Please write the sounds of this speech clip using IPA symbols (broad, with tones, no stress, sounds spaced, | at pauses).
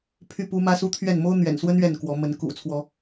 pʰ y˥˨ p u˦ m ä˦ s u˦ t̪ʰ ɥ ɛ˥˨ n m o˦ ʊ̯ n̪ ɥ ɛ̰˨˩ n s w ə˦ n ɥ ɛ˥˨ n k w ɔ˨˦ m ə˨˦ n k ṵ˨˩ t͡sʰ w ɔ˨˦